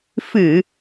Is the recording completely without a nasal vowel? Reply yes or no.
yes